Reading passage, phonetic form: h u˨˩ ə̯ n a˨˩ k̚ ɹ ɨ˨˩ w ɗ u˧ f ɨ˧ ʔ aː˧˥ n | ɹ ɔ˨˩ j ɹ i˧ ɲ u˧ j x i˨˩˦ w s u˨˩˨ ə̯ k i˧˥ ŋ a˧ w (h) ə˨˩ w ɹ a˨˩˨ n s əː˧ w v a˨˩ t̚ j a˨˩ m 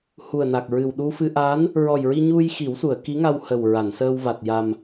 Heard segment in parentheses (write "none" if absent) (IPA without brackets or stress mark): h